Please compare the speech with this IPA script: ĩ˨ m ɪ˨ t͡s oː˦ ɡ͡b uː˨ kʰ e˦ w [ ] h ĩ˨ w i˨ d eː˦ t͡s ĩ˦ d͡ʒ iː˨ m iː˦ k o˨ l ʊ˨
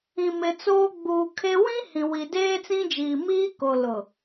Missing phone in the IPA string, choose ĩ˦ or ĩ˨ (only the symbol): ĩ˦